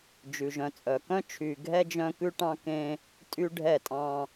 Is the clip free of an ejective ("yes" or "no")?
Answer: no